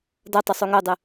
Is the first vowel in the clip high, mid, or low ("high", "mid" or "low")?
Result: low